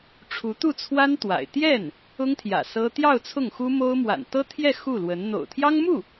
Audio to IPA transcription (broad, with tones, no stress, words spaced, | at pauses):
ʈ͡ʂʰu˧˥t̪u˥˩t͡sʰwa˥n t̪wa̰˨˩ɪ̯ t̪jɛ˥˩n | ʊ˥ŋt̪ʰjä̰˨˩ sɤ˥ t̪jɑ˥˧ʊ̯ t͡sʰʊ˥˩ŋxu˥mo˥ʊ̯ mwa̰˨˩nt̪ɤ˥t̪ʰjɛ˥˧ xu˥˩lwə˧˥n n̪o̰˨˩ʊ̯t̪ʰjɑ˥ŋmu˥˩